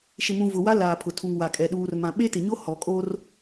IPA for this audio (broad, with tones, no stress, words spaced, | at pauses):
ʃɪ˨mũ˨ vʊ˨wa˦ laː˨ pʰʊ˨ tʰu˨ŋwa˨kʼɛ˨ ɗuː˨rmã˨ ɓe˦tɪ˨ɲo˦ hɔ˨kʼo˦r